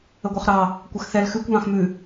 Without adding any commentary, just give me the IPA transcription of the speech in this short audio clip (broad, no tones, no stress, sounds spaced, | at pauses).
ə ɡʷ ɑ χ ɾ ɑ | kʷ ɐ x θ ɛ l x ʉ kʷ β ɑ̃ x m ʉ